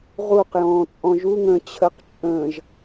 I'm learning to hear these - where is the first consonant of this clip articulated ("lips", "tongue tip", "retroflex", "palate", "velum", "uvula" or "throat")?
uvula